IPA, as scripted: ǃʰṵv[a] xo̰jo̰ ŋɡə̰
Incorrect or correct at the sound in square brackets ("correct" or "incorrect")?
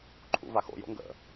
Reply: correct